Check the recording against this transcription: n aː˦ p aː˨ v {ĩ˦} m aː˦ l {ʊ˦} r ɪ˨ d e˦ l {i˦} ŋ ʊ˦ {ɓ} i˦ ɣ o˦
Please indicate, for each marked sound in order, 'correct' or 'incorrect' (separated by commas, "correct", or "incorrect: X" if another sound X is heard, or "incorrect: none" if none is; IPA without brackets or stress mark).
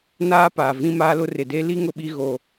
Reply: correct, correct, correct, correct